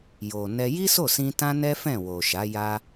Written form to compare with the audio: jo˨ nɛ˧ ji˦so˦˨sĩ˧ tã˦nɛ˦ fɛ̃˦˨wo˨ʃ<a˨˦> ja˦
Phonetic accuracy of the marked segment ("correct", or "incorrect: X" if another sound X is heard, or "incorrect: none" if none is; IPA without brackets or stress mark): correct